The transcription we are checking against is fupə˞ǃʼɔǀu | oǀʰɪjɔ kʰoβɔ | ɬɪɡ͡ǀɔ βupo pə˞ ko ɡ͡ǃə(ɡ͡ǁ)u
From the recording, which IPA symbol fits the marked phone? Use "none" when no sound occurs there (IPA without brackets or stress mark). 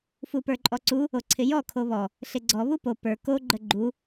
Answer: ɡ͡ǃ